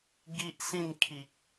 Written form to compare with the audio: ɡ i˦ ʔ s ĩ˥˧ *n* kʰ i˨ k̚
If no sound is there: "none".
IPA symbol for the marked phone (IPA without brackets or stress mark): n